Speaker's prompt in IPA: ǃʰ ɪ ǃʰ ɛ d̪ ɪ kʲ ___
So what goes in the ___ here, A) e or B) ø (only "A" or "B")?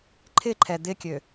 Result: B